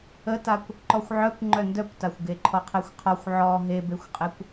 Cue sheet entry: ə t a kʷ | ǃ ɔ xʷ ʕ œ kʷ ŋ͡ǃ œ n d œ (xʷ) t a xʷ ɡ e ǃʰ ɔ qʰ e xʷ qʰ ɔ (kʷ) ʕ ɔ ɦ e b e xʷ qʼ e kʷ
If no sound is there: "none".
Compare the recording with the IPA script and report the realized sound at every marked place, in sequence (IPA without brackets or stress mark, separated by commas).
kʷ, xʷ